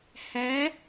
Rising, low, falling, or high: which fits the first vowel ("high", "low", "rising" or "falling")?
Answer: rising